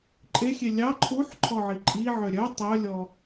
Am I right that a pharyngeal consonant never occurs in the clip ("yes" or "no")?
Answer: no